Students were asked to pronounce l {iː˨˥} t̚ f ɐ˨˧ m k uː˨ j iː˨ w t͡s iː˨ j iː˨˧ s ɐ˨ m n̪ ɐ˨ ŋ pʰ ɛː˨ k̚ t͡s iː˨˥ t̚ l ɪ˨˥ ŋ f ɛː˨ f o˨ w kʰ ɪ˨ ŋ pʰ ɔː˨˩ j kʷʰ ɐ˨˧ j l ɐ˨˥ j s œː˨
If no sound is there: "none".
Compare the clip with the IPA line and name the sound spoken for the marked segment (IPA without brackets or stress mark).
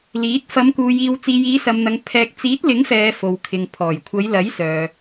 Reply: iː˨˥